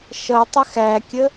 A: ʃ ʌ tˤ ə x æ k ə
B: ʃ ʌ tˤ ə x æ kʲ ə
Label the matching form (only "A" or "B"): B